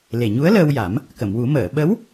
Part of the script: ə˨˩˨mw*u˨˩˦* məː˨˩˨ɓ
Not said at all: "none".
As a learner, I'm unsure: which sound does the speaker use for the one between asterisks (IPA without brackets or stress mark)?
u˨˩˦